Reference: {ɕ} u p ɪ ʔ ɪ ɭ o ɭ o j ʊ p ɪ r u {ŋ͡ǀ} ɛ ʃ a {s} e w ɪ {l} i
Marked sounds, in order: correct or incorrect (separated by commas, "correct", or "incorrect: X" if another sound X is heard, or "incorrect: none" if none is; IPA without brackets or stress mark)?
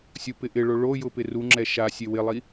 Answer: incorrect: sʲ, incorrect: ŋ͡ǁ, incorrect: sʲ, incorrect: lˠ